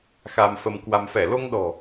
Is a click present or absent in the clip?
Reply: absent